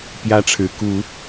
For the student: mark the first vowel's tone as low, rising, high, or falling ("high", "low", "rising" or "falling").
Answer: high